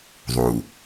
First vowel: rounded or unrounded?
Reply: rounded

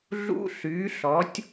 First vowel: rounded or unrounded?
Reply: rounded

